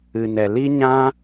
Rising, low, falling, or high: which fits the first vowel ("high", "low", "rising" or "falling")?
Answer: low